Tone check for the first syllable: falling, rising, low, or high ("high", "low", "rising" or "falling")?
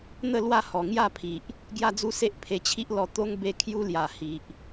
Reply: falling